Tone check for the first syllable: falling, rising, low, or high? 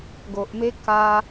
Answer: low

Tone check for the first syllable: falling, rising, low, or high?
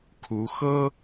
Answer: rising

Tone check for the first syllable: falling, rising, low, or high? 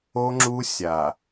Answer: high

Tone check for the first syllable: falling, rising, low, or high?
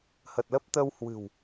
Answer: low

